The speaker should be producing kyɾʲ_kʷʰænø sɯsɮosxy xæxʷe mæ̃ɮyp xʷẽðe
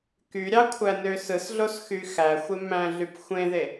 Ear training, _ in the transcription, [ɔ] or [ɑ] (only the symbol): ɑ